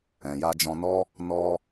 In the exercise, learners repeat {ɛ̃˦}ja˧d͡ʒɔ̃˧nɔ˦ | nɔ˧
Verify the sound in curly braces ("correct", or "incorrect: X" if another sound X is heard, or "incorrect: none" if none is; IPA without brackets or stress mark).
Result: incorrect: ɛ̃˨